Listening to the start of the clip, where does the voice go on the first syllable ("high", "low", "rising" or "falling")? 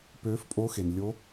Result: rising